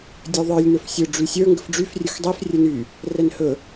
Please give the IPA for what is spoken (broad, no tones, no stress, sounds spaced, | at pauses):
dʲ ɵ ðˤ ə˞ lʲ n ɵ f sʲ ɵ ɖ͡ʐ y sʲ ə˞ ŋ ɡ ə f ɖ͡ʐ y f rʲ ɵ x dˤ i f rʲ ɵ n y | r ɛ n h ɵ